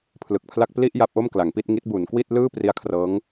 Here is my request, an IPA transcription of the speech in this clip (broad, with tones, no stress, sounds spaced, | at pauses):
pʰ l ɯ˨˩ k̚ pʰ l a˥˩ k̚ p l i˥˩ ʔ j a˦˥ p̚ ʔ o˥˩ m k l a˩˦ ŋ p i˥˩ t̚ ŋ i˦˥ t̚ b u˩˦ n k w i˥˩ t̚ l ɯː˥˩ p r i˦˥ a̯ kʰ r ɤː˦˥ ŋ